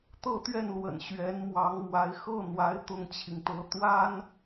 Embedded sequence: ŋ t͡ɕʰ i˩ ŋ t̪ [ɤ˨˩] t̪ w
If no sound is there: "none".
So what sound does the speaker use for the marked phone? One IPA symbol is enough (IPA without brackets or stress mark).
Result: ɤ˧˥